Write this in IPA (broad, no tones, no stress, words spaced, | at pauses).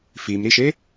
fimɾiʃe